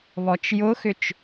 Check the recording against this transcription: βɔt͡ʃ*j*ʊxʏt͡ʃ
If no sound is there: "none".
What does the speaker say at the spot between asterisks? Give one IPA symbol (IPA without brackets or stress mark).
j